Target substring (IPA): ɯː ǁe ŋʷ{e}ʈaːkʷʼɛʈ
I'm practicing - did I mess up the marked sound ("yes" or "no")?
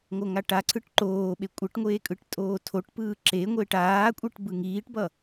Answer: no